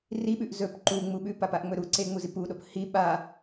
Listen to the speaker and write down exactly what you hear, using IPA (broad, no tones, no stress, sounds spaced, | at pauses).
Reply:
r i ɓ ʉ ʔ z ɵ p ǃ u ŋ͡m u ɓ ʉ p a p a ʔ ŋ͡m ɵ ɾ u ǀ e ŋ͡m u z i p u ɗ o p h i ɓ a